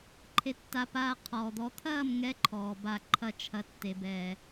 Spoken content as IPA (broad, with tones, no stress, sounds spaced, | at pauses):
ǃʰ e˧ tː a˧ p aː˧ qʰ ɔː˨ d̪ ɔ˨˦ t̪ʰ ɐː˦˨ m ŋ ɛ˨˦ ǃʰ ɔː˨ b a˧ ǃʰ ɐ˦ t͡ʃʰ ɐ˧ tː e˨ b ɛː˨